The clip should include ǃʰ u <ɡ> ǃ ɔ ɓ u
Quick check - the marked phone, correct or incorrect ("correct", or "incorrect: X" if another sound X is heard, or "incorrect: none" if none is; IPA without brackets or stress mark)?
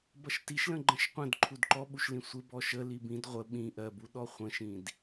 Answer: incorrect: d